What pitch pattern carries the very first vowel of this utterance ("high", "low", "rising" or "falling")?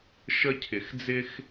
high